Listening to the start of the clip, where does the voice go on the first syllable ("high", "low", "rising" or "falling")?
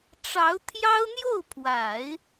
rising